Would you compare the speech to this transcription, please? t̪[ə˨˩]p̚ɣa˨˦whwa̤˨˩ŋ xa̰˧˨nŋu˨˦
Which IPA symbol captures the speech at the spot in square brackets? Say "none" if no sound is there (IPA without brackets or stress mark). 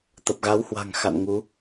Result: ə˨˩